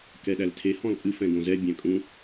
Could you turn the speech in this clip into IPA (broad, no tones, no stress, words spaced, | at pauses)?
kɛɗæltʰe hɔ̃lpʼɨ fɛ̃ɡõzɛ bʲæ̃kʼũ